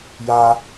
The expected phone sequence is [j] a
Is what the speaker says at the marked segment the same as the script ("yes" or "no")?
yes